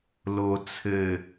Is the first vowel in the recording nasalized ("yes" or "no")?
no